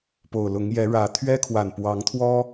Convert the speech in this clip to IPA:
p o˨˩ ʊ̯ l ʊ˨˦ ŋ j ɛ˨˦ ɻ ä˨˩ t̪ʰ ɥ ɛ˦ kʰ w a˨˩ n p w ɑ˨˦ ŋ t̪ʰ w ɔ˦

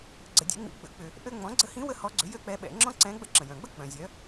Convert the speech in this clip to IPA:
ɡ͡ǀ ə˧˩˧ dʲ ɛ̰˩˥ ŋ͡m ḭ˧˥ ɡ͡b ə̰˧˩˧ k͡p ʏ˧˩˧ | ʔ ø˥ ŋ͡m ɔ̃˩˥ ɡ͡ǀ ə˧˥ h ĩ˧˥ w ə˥ h ɔ˧˥ ɡ͡ǀ ʏ˩˥ j ø˥ k͡p ɛ˧˥ ɓ ɛ̰˧˩˧ ŋ͡ǁ ɔ̃˥ ǀ ɛ̃˧˥ ɡ͡b ə̰˥ ǁ ə̃˩ j œ̃˩ ɡ͡b ə˥ k͡p œ̃˩ zʲ œ˩˥

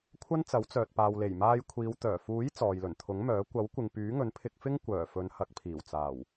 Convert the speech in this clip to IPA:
kʷʰ ɐ˥ n t͡s ɐ˨˥ w t͡s œː˨ t̚ p aː˨ w l e˨˩ j m aː˧ j kʷʰ iː˨˧ w t̪ œː˨˩ f uː˨˥ j t͡s ɔː˨ j l ɵ˨˩ n t̪ʰ ʊ˨˥ ŋ m œː˨˥ kʷ ɐ˨˥ w kʷ ɪ˨ ŋ p yː˨˥ ŋ ɵ˨˥ n pʰ ɪ˧ k̚ f ɪ˥ ŋ kʷ œː˨˩ f ɵ˨˧ n h ɐ˨˥ k̚ pʰ iː˨˩ w t͡s aː˨˩ w

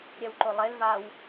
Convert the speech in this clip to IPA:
ɾʲ ɛ w ǃ o lˠ e l v a w

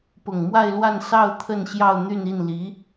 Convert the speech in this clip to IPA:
p ʊ˨˩ ŋ m w a˥˧ ɪ̯ l w a˥˧ n s ɑ˥˧ ʊ̯ t̪ʰ ə˥˧ n ɕ j ɑ˥˧ ʊ̯ n̪ y˥˧ n i˥˩ n l i˧˥

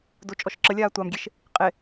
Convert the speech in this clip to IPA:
d o t͡ʃʼ ɔ ʃ ǁ ə lʲ aː tʷ a m ɡʲ e ʃ | qʼ e

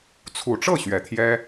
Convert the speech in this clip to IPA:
t͡sʰ u˨˩ ʈ͡ʂ ɤ˥˨ ɕ ɥ ɛ˨˩ t̪ʰ j ɛ˦

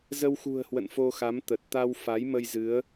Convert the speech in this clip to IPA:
z ə˧ w x ṳ˨˩ ə̯ h w ə̰˧˨ n f o˧ x a˨˦ m t̪ ə˨˩ t̚ t̪ a˧ w f a˨˦ j m ə˧ j z ɨ˨˦ ə̯

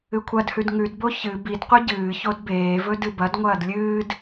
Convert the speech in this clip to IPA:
ɨ kʷʰ ɐ d h ʉ d ŋ ʉ d b o ç ɨ b i d qʷ ɨ ɟ ɨː ç o d b eː v ɵ d ɨ b ɐ d ŋʷ ɐː d lʲ ɨː d

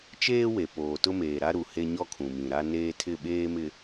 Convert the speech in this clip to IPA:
t͡ʃ eː˦ w e˨ p oː˨ t ʊ˦ m eː˨ ɾ a˦ ɾ u˨ h e˦ ɲ ɔ˦ kʰ ũ˨ m ĩ˨ ɾ a˦ n eː˦ tʰ ɪ˦˨ ɓ eː˦ m ɪ˨

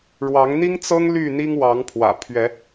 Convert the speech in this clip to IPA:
ɻ w ɑ˨˦ ŋ n̪ i˦ ŋ t͡s ɤ˦ ŋ l y˥˨ n̪ i˦ ŋ w ɑ˨˦ ŋ pʰ w ä̰˨˩ pʰ ɥ ɛ˨˦

